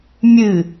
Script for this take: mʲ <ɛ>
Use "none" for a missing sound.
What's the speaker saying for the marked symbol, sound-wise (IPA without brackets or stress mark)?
ɨ